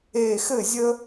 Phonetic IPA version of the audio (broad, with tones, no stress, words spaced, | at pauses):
e˧˩ xɘ˥˩zʲə˥